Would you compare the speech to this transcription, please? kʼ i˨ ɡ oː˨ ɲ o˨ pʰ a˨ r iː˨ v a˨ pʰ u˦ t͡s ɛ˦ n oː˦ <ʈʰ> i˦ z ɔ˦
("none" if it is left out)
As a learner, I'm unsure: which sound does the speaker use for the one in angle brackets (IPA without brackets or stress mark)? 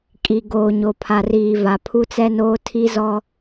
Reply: tʰ